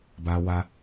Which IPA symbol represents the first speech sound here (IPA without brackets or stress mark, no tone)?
b